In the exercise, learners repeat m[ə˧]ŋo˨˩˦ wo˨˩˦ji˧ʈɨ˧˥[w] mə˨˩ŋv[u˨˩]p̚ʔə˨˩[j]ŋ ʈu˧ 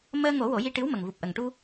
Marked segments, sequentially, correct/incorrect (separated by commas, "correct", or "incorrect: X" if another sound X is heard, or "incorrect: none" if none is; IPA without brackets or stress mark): incorrect: əː˧, correct, correct, incorrect: none